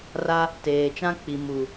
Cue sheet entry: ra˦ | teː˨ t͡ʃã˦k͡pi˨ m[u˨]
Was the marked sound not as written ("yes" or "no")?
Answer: no